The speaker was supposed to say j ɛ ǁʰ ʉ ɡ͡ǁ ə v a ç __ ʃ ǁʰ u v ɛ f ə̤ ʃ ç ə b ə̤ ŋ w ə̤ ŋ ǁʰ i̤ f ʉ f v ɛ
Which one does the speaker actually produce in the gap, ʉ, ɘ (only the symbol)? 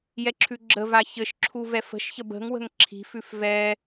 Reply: ɘ